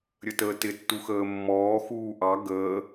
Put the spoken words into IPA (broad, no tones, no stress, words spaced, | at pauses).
ɾʲətəːtɪ tːuxəːmːɔː xuːʔɑ ɡəː